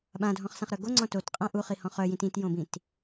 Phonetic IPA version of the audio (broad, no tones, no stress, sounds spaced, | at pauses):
ɓ ã dʱ ɔ̃ χ s ã χ ɾ œ ɡ o ŋ͡ǀ ɔ̃ t o t qʼ ã ʔ u χ i h ɔ̃ χ œ j ĩ t ĩ t j õ b ĩ t